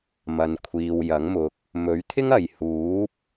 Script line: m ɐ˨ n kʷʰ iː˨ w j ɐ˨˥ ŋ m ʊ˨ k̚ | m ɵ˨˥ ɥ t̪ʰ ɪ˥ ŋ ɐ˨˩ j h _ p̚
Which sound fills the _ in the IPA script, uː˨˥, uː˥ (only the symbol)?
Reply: uː˨˥